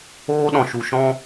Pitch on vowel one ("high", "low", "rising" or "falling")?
high